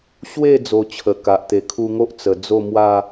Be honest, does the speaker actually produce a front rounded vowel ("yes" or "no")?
no